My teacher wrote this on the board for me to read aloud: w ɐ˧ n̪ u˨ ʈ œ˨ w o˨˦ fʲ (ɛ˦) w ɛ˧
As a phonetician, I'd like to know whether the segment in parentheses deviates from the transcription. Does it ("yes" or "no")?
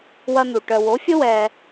yes